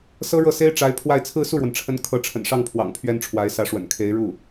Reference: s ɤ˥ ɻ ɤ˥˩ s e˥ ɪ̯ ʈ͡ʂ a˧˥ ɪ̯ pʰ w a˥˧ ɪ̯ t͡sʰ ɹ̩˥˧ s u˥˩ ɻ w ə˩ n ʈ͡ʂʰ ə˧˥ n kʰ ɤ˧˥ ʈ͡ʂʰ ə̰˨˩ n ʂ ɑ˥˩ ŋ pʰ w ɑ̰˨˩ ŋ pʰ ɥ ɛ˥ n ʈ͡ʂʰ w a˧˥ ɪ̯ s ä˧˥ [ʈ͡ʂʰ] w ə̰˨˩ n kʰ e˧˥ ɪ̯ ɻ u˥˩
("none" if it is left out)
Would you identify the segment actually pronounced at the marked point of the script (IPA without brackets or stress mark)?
ʂ